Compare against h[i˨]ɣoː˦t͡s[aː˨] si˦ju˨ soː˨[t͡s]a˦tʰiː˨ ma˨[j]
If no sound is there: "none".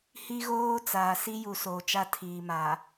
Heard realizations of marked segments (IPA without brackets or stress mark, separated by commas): i˦, aː˨, t͡ʃ, none